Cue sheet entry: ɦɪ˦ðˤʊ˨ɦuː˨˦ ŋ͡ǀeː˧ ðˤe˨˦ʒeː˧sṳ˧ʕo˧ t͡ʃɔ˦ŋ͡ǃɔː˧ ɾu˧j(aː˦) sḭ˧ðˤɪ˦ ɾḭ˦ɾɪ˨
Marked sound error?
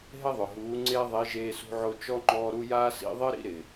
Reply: no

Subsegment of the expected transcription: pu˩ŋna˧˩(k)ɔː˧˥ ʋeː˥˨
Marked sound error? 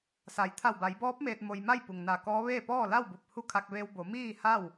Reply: no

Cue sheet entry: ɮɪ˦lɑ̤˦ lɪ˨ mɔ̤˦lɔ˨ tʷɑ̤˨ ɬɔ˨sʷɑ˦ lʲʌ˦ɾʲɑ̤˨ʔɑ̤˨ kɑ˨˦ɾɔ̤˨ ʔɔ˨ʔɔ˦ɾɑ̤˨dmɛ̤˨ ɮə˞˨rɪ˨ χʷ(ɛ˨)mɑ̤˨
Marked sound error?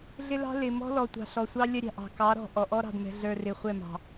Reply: yes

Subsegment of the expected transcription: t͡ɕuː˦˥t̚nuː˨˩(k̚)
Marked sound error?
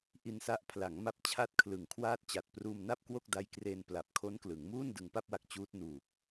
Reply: no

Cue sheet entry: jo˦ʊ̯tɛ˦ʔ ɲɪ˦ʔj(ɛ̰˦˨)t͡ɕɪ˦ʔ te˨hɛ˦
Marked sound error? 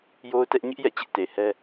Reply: no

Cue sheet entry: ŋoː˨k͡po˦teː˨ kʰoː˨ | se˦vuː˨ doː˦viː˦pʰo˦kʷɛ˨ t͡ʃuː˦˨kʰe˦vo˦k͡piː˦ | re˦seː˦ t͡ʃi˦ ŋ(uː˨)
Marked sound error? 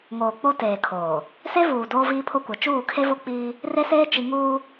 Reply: yes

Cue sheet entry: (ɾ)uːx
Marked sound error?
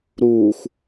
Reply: no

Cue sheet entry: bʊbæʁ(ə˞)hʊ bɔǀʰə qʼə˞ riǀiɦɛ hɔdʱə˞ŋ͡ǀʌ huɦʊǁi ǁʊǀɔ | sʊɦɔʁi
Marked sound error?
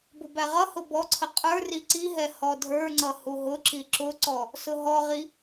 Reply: yes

